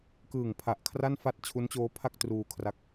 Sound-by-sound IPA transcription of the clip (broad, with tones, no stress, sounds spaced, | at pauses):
k ɯː˨˩ ŋ pʰ a˨˩ ʔ kʰ r a˥˩ n f a˥˩ t̚ t͡ɕʰ u˦˥ n t͡ɕ oː˦˥ pʰ a˥˩ k̚ t r uː˧ kʰ r a˦˥ k̚